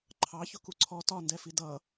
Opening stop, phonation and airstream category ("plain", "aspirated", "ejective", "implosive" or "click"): click